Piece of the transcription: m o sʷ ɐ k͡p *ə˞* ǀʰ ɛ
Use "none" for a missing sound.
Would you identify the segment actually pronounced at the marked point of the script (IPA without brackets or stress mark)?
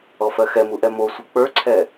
ə˞